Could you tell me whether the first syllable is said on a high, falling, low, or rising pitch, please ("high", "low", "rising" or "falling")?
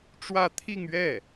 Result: falling